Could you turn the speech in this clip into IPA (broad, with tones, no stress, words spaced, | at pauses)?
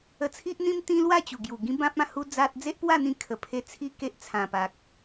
ə˧t͡sʰi˦ʔn̪ĩ˦m t̪ĩ˦lwa˥˧t͡ɕu˨˩ ɡju˨˩ ɡĩ˦bã˦p̚ã˥˧ hu˧ d͡za˦t̚ d͡ze˦ʔpwa˥˧n̪ĩ˧ kʰə˨˩pʰe˧ t͡sʰi˥˧ke˦ʔt͡sʰã˨˩pa˨k̚